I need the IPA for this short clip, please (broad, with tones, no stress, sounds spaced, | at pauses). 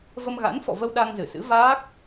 v ə˧ m ɣ a̰˧˥ n f ɔ̰˧˨ v ə˧ w ɗ a˧ ŋ z ɨ˧˩ s ɨ̰˧˥ v aː˦˥ k̚